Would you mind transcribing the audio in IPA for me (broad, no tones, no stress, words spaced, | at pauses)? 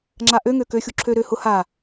ŋ͡ǁaʔøŋø køxʲu ǁʰø ɾø hʊ ha